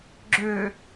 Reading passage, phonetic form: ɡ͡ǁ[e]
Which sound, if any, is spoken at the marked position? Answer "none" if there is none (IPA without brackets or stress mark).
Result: ø